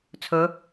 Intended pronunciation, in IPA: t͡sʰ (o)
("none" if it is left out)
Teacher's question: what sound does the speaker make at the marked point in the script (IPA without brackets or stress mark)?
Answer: ɵ